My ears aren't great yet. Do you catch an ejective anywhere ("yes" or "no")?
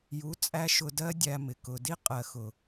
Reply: yes